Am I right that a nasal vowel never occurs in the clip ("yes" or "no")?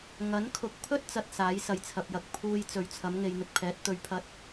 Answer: yes